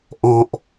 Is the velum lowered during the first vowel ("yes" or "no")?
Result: yes